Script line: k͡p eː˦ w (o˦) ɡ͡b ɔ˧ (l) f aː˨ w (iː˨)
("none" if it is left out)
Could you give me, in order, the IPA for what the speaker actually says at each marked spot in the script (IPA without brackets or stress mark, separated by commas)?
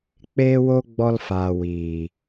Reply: o˦, l, iː˨